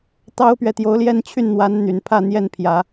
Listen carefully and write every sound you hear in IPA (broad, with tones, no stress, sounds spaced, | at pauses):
t̪ ɑ˥ ʊ̯ p ɥ ɛ˨ t̪ j o˧˥ ʊ̯ l j ɛ˥˧ n t͡ɕʰ y˥˩ n n̪ w a˧˥ n n̪ y˨˩ n pʰ ä˥˧ n̪ j ɛ˥˩ n pʰ j ä˨˩˦